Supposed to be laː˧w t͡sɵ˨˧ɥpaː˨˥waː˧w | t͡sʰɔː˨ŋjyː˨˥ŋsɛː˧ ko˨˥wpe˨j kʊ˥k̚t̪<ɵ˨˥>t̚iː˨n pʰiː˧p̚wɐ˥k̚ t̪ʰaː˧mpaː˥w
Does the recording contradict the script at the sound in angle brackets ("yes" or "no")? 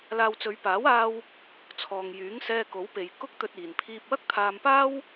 yes